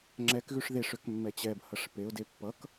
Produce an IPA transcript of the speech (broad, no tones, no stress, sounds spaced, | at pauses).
ŋ͡ǁ ɛ k ɣ ʉ ʂ ð e ʂ ø k mː ɛ t͡ɕ ɛ b h ʌ ʂ p e ʊ̯ d e pː ʌ k